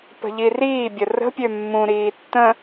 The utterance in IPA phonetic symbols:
p ə̤ ʎ i r iː bʲ ə r ə̤ pʲ ø mː ũ ɾ iː tː ə̃

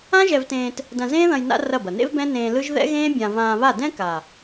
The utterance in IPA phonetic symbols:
ã˦ ʒ ɛ˧ v t ẽː˧ t | d ɐ̃˧ z ẽː˦ ð ɐ̃˧ j n a̰˦ r ɐ˦˨ b ɐ˨ n ḛ˦ v b ɛ̃˦ n ẽː˧ l ɯ˦ ʒ ð ɛ̰˦ ɣ ẽː˦ bʲ ã˧ v ãː˧ β a˦˨ d ɛ̃˦ k a˨

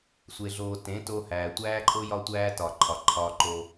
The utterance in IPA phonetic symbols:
sʷ e˨ ɮ oː˨ t ẽ˨˦ t o˧ h æː˨ tʷ æː˦ ǃʼ o˦ j ɒ˧ tʷ æː˧ t ɒ˨ ǃʰ ɒ˨ ǃʰ ɒː˧ ǃ oː˧

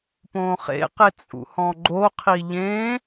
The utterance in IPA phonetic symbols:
p õː χ ḛ q e t͡sʼ ṵ h ɔ̃ ɡ͡ǃ o qʰ i ʎ ẽ

